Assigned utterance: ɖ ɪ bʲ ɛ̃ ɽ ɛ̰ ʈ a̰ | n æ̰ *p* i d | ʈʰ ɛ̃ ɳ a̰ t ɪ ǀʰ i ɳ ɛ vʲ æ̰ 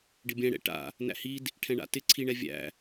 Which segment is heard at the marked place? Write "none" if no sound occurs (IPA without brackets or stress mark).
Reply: h